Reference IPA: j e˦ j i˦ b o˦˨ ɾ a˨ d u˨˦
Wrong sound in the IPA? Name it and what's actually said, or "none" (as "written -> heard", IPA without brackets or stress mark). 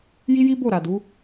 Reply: e˦ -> i˦